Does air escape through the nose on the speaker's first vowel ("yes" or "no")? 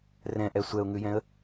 yes